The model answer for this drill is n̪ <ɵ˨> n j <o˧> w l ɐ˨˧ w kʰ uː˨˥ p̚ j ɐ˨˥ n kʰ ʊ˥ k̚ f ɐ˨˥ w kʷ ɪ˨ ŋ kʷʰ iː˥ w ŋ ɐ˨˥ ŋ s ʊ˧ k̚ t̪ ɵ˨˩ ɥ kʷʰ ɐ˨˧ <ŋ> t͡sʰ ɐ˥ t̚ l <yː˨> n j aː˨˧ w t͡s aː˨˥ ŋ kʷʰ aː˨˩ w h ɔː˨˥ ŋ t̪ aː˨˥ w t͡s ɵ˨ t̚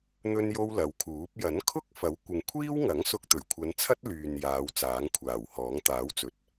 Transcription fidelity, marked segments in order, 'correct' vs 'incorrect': incorrect: ɵ˥, incorrect: o˥, incorrect: n, correct

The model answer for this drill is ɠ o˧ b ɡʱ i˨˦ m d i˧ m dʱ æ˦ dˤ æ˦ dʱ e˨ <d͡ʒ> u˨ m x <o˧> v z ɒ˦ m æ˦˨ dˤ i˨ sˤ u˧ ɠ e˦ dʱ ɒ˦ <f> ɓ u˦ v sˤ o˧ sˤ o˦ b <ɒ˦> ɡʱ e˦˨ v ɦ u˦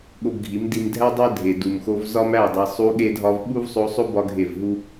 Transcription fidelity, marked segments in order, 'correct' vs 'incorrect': incorrect: d, correct, incorrect: v, correct

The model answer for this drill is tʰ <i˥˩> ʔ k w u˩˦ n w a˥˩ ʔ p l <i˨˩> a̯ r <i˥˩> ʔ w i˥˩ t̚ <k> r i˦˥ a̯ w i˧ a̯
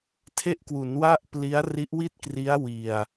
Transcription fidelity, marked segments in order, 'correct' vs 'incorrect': incorrect: e˥˩, incorrect: i˦˥, incorrect: i˦˥, correct

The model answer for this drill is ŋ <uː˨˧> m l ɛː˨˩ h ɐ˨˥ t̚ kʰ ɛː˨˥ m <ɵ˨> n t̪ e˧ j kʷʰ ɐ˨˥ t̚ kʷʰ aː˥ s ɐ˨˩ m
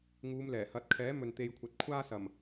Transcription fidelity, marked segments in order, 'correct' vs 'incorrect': correct, correct

